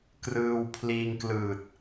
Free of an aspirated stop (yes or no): no